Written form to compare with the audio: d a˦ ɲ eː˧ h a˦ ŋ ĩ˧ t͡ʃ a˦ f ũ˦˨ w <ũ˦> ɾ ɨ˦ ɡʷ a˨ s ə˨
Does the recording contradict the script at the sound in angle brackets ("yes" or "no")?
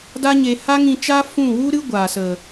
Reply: yes